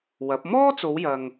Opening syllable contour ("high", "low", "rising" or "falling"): rising